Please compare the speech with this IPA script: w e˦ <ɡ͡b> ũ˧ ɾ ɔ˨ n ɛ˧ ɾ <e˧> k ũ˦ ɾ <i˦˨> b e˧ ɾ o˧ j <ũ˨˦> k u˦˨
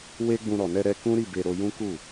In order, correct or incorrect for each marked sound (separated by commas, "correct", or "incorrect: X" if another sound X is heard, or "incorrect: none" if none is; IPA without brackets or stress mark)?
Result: correct, incorrect: ɛ˧, correct, incorrect: ũ˦